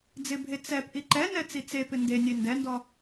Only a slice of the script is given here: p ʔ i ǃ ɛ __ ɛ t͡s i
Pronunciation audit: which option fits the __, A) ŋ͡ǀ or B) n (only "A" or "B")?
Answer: B